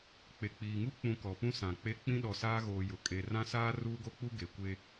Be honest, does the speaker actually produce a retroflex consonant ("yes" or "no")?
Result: no